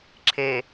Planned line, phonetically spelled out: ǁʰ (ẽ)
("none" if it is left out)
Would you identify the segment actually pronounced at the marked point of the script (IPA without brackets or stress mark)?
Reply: e